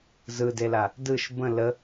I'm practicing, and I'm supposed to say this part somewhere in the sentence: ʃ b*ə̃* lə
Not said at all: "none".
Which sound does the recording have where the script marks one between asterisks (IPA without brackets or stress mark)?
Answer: ə̃